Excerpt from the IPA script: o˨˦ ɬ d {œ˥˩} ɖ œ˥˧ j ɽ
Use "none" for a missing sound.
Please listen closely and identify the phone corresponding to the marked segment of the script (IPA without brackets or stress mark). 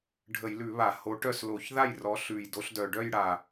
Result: œ˨˩